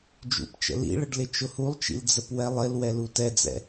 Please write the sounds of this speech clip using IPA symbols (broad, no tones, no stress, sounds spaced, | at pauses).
d͡ʒ ṵ p t͡ʃ ə̰ l ḭ ɭ ə ɖ l ɪ t͡ʃ ʊ h u lˠ t͡ʃ ḭ l d͡z ə p w ɛ lˠ ɪ l w ɛ l u t ɛ d͡z ɛ̰